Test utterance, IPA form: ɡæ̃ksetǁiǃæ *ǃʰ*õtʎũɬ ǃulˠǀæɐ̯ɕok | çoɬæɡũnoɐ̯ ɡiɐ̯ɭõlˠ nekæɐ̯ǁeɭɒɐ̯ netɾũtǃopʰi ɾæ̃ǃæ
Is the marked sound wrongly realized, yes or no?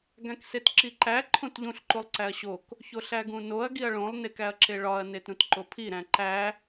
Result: no